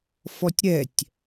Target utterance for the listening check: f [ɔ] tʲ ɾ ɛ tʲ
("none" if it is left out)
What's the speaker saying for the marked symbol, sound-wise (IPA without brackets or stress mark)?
ɔ